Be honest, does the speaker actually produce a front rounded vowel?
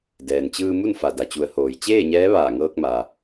no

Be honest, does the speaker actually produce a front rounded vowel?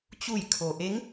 no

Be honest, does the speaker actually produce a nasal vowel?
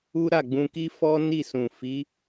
yes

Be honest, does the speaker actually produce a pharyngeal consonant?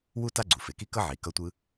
yes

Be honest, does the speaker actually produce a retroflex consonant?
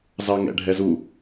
yes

